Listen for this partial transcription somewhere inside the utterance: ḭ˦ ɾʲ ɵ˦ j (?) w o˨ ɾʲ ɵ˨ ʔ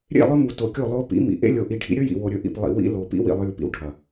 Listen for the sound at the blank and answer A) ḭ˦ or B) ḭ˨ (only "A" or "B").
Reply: B